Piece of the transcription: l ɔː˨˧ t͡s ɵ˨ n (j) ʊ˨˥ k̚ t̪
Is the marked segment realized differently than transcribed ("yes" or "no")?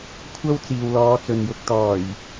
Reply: no